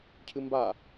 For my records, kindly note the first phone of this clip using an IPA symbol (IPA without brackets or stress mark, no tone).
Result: cʰ